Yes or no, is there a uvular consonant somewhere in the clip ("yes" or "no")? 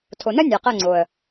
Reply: yes